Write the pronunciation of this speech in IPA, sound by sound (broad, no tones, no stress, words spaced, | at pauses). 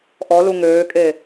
ʔɔlu ŋøːkʼe